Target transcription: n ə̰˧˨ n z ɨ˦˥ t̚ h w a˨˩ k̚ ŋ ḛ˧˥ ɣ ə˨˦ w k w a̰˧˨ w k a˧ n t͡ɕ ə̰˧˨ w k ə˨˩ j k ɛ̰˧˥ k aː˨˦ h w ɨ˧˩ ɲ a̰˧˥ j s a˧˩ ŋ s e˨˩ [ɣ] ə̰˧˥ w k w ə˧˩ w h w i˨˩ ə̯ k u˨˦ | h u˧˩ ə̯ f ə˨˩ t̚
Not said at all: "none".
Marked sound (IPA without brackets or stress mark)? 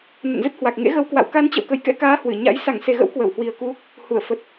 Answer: ɣ